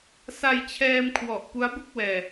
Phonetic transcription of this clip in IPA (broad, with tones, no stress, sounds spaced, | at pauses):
s a˧ j t͡ɕʰ ɛː˧ m kʰ w ɔ˨˩ ʔ p u˦˥ a̯ b u˥˩ k̚ w ɛː˧